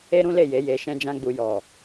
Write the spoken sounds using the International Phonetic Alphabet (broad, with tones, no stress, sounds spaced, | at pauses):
e˦ ɾ ũ˦ l e˦˨ j e˨˦ j e˧ ʃ ɛ̃˧ d͡ʒ ã˧ ɡ͡b u˨ j ɔ˨